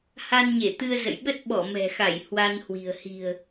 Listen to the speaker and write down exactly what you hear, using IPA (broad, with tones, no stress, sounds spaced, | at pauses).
h a˧ n ɲ e˧˩ t̪ ɨ˧ ə̯ z ə̰˧˨ j ɓ ə˦˥ t̚ ɓ ɔ˧˩ m ɛ̤˨˩ x a˧˩ j h w a˧ n h w i̤˨˩ ə̯ h i̤˨˩ ə̯